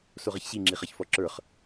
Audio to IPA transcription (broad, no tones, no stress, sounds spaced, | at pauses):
s o ʁ ʌ ç ɕ i ŋ͡ǁ i χ ʌ ç f ɔ ǁ ə˞ χ